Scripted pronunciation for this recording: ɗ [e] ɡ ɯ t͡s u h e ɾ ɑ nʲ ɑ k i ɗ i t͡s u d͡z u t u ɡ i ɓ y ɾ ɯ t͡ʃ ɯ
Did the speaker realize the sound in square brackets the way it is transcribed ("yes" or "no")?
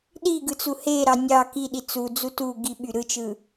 no